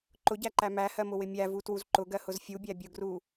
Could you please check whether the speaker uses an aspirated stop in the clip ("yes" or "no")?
no